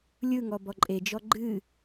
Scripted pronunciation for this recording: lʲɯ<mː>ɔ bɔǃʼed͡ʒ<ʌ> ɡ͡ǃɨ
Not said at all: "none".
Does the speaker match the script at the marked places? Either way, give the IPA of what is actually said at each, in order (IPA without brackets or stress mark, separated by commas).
ŋ, ɔ